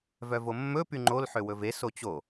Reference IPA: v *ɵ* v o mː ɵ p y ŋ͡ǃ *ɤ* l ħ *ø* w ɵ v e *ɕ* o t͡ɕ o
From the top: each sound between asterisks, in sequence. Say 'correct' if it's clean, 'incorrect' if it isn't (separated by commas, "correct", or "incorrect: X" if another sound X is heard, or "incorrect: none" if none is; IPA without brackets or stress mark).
incorrect: œ, incorrect: o, correct, incorrect: s